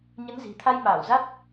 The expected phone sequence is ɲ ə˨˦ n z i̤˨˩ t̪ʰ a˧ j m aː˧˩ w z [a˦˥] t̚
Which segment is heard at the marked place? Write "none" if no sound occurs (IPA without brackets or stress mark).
a˦˥